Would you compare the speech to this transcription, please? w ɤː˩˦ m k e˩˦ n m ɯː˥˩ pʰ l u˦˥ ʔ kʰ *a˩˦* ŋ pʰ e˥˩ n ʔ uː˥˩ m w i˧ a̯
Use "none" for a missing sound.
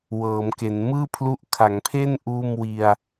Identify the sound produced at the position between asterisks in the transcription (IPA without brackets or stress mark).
a˩˦